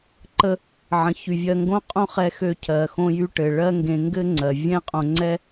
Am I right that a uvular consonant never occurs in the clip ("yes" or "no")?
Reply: no